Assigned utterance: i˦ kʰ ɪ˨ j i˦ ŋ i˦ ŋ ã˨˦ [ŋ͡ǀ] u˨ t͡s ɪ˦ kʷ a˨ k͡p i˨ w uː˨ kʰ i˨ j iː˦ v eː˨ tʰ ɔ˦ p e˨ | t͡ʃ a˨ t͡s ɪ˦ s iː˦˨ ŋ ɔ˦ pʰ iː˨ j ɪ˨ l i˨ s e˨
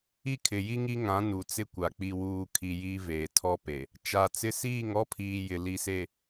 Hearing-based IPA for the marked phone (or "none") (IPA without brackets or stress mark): n